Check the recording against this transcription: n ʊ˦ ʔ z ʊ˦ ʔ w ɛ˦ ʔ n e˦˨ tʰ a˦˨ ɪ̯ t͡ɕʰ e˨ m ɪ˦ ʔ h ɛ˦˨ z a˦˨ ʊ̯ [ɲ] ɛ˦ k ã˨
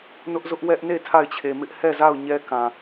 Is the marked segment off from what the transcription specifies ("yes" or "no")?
no